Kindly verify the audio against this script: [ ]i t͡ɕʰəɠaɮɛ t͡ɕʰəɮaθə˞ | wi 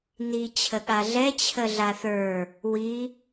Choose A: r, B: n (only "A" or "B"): B